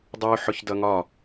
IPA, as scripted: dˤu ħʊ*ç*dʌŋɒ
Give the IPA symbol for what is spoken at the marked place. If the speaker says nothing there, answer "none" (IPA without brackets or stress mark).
ç